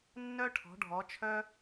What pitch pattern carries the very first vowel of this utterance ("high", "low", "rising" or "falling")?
high